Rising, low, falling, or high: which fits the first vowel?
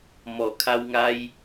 low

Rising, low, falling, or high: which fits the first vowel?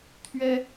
high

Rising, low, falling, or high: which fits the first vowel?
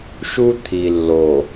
high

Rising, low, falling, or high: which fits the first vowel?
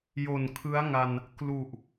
low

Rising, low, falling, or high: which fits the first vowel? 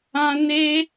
high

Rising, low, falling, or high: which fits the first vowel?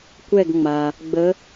falling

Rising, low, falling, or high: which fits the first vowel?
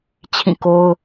falling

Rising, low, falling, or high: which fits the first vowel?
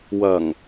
low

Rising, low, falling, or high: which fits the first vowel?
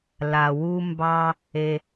low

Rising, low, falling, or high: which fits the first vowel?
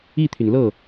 falling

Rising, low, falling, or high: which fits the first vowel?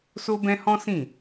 high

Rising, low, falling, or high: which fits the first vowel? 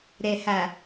low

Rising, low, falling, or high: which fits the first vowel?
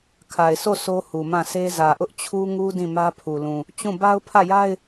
low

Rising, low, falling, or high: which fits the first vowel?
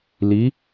rising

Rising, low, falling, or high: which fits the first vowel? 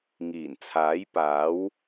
low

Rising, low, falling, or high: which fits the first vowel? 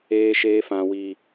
low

